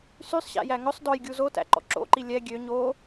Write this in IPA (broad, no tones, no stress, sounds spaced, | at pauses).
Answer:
s y sˤ ɕ æ̰ j æ ŋ ɵ sˤ d ɔ j ɡʲ u z o t æ̰ ǃ ɔ̰ ǁ o̰ ǃ i lʲ ɛ ɡʲ ø ɲ o